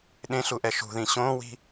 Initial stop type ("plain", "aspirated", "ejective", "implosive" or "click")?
implosive